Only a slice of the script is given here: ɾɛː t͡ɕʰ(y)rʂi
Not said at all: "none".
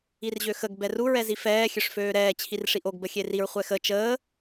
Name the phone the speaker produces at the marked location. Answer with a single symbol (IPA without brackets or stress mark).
i